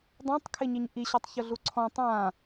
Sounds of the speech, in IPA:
dˤõtˤkʰɪɲiɲ ʔiɕɔtˤçʊɮu ǀʰɔ̃ tˤã

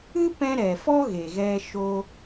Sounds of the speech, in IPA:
ɨ˦pɛ̃˧ ɾɛ˨fɔ˦ ɣe˨ɣɛ˧ ʃo˧

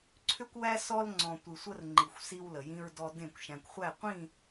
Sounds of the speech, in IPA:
ǀʰʏ˦kʷwæ˦ sɔ˦lŋ͡ǀɔ̃˨ tʷɨ˨sʷə˦rŋ͡ǃi˨xʷ si˦wlə˨jĩ˦ɹdɔ˦ dẽ˦˨kʷ ʃæ̃˨kʷχʷæ˦˨qʷĩ˦˨

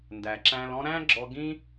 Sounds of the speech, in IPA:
ndæ˨ǁæ̃˧lɔ̃˦ ɾæ̃˦ɡ͡ǁɔ˧ɡĩ˦

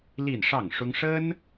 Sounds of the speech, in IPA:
li˥˧nʂɑ˥˩ŋʂʊ˥ŋ ʂə˥n

